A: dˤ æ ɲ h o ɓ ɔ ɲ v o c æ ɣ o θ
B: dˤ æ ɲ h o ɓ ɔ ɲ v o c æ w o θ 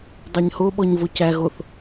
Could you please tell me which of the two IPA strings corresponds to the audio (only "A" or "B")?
A